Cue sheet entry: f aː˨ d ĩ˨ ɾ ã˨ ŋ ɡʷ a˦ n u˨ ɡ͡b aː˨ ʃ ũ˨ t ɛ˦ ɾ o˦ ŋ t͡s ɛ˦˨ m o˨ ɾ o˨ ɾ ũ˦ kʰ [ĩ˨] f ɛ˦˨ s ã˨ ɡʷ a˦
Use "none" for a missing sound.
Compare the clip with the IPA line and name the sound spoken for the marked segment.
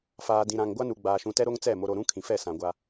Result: ĩ˨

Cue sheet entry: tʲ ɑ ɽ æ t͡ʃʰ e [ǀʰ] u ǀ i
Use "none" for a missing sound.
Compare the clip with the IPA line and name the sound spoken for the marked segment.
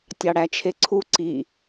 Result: ǀʰ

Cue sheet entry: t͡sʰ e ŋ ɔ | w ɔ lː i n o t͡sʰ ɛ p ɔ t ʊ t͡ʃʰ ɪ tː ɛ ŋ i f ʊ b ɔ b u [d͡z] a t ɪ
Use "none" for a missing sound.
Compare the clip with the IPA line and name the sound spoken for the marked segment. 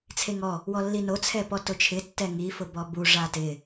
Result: ʐ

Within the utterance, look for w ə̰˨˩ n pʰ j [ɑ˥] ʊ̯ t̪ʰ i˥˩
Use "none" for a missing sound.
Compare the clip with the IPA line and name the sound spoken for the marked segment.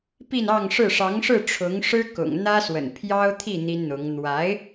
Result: ɑ˥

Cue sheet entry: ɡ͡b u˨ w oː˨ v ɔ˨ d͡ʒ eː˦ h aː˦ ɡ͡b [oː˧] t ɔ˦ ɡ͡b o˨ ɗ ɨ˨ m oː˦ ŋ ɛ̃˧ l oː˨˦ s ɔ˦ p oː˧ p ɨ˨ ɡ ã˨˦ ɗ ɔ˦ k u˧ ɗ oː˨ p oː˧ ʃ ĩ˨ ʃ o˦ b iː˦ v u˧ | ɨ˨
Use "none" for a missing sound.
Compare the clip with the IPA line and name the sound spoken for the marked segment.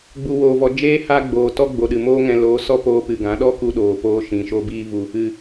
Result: oː˨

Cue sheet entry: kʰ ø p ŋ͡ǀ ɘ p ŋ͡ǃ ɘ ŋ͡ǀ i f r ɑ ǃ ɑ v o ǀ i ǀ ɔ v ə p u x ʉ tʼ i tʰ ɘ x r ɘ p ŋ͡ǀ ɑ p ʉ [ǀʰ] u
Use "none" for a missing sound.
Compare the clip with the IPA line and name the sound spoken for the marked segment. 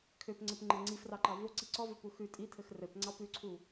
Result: ǀʰ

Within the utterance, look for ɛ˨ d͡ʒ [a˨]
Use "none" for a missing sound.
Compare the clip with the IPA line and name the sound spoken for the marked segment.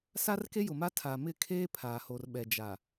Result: a˨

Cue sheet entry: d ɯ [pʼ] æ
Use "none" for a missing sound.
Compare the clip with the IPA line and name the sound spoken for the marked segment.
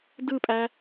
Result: pʼ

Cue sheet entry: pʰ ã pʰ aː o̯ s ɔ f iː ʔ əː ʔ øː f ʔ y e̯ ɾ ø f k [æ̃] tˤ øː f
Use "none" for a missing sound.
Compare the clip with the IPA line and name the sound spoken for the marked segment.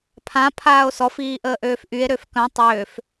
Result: œ̃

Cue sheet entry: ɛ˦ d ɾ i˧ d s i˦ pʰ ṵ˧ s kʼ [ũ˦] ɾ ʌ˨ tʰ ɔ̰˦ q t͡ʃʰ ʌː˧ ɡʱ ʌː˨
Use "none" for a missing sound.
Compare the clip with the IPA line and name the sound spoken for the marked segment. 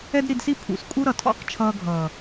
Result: u˦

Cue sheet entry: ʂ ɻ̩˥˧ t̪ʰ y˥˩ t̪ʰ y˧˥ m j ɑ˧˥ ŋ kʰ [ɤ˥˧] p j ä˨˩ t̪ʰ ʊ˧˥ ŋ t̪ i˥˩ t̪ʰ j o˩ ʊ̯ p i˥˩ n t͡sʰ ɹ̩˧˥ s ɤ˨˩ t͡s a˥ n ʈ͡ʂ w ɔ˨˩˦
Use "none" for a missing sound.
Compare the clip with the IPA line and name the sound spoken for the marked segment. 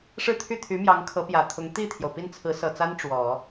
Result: ɤ˧˥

